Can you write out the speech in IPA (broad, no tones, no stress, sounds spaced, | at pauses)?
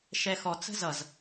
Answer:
ʃ ɛ x ɔ t͡s ə̤ z ʌ z